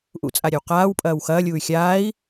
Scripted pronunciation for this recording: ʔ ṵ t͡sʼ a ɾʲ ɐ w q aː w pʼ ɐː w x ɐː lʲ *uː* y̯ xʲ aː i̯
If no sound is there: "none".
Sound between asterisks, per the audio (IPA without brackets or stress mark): uː